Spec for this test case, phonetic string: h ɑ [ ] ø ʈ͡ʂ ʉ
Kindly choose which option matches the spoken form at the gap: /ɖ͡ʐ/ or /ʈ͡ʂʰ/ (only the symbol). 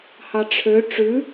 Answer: ʈ͡ʂʰ